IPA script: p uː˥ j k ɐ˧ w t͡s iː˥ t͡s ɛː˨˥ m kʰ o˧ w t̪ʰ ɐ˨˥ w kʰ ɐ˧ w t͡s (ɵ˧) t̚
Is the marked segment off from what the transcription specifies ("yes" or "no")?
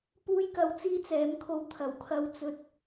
no